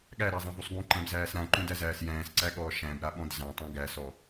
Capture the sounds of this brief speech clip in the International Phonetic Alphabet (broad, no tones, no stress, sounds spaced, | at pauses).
ɠ æ ɾ æ zˤ ã v u sˤ ɡ ũ ǃ æ̃ b z æː s ɾ ã ǃ ũ d æ z æː s j æ̃ː s ǀ æ ɠ ɔː ʃ æ̃ b ɾ a ɓ ɔ̃ d z ã tˤ ũ ɡ æ s ɔ